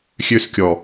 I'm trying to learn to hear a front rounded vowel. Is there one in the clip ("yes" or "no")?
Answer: yes